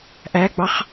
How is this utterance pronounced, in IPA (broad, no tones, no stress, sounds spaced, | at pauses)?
ʔ æ ɡ͡b ɑ χ